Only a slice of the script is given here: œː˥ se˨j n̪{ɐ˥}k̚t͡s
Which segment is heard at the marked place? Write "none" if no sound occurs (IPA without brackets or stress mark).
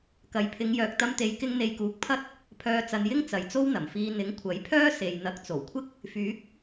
ɐ˨˥